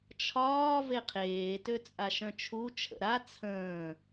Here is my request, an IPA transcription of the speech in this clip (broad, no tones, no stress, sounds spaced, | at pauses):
t͡ʃʰ ɒː v e qʰ eː t ø t͡sʼ a ʃ œ̃ t͡ʃʰ u t͡ʃʰ ə̰ ɾ a t͡sʰ ə̃ː